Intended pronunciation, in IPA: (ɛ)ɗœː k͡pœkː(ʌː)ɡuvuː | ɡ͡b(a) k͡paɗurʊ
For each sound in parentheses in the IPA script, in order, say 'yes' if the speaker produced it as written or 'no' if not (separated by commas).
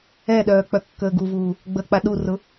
yes, no, no